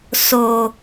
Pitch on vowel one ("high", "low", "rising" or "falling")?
low